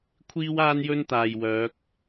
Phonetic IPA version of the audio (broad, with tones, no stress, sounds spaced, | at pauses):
kʷʰ iː˥ w aː˥ n j ɵ˥ n t̪ aː˨ j w œː˨˥ k̚